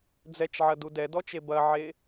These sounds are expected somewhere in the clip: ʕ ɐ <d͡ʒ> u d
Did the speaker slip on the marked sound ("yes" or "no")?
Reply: yes